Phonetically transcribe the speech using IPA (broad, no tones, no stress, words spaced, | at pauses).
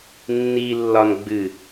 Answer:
nːi lːɒnɡ͡bɨ